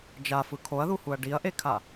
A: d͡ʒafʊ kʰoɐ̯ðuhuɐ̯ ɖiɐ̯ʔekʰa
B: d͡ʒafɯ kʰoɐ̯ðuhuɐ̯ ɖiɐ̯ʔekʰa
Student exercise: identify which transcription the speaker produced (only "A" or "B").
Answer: B